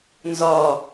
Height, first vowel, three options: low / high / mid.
low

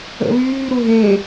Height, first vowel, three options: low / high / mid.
mid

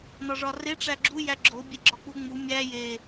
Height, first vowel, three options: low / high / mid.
low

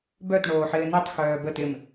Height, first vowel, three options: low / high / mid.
mid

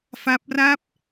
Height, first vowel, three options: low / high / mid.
low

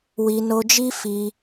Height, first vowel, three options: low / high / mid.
high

